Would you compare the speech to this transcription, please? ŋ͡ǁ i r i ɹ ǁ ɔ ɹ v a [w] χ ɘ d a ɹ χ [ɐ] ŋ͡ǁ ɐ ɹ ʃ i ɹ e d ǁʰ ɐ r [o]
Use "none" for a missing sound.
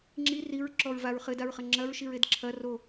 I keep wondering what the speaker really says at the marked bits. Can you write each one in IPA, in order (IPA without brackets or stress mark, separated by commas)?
ɹ, ɐ, o